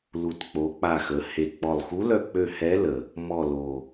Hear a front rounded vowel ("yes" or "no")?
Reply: yes